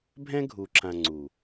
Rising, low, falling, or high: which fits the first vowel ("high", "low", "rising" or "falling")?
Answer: high